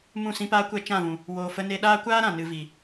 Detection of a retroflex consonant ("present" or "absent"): absent